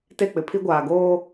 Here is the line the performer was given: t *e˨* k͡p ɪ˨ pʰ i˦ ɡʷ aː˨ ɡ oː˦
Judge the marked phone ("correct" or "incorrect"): incorrect